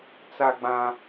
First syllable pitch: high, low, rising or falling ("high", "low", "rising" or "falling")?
high